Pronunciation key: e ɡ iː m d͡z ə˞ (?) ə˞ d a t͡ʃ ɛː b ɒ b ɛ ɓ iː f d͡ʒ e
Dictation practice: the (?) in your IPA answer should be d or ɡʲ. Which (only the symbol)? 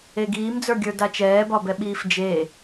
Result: ɡʲ